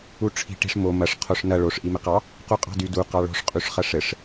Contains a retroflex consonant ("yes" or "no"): yes